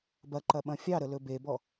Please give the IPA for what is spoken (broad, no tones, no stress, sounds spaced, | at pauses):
b ɐ ǃ ɐ ɓ ɐ̃ fʲ ɑ ɾ ə l ɵ b e b ɔ